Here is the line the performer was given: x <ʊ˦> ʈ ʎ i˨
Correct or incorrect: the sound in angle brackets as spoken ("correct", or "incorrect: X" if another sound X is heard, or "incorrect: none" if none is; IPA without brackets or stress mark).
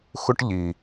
correct